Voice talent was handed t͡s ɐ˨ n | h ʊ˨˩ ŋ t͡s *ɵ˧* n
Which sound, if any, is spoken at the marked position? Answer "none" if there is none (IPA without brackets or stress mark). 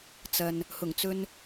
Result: ɵ˧